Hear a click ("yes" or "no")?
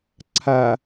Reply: yes